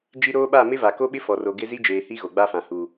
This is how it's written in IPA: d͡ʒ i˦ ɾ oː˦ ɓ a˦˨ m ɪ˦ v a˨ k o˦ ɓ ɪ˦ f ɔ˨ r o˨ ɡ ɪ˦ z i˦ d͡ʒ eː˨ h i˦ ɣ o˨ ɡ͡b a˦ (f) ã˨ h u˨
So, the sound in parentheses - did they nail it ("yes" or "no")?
yes